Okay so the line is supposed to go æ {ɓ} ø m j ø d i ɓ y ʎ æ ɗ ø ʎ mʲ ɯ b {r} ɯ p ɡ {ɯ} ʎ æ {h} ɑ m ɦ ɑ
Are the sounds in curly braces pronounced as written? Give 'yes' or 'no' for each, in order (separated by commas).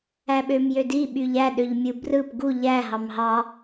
yes, yes, no, no